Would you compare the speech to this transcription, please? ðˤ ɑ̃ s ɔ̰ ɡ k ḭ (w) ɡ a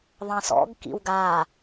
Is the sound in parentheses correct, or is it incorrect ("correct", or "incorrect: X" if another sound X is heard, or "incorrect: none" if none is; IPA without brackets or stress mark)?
correct